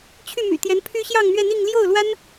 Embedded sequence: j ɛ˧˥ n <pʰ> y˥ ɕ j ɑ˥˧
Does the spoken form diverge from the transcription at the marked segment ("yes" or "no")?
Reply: no